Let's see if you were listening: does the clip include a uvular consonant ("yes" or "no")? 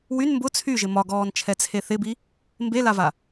no